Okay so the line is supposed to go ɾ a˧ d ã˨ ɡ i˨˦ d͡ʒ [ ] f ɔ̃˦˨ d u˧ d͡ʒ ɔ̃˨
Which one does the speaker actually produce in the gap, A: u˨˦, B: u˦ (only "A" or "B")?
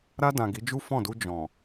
B